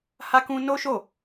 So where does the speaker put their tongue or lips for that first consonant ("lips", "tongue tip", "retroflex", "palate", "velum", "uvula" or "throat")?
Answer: throat